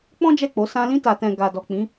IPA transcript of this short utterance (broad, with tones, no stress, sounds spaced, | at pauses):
k͡p ɔ̃˦ d͡ʒ ɛ˦˨ k͡p o˨˦ s ã˧ l ĩ˧ t a˨ t ɛ̃˨ ɡ a˨ d ɔ˨ k͡p ĩ˨˦